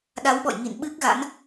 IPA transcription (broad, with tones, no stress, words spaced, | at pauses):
ɗa˨˦wɓɔ̰˧˨jŋḭ˧˨n ɓɨ˦˥k̚ɣa̰˧˥n